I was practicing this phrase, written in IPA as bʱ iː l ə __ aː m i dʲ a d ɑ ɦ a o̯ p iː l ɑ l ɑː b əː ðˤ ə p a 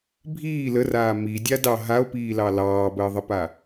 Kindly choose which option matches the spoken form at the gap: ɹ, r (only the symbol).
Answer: r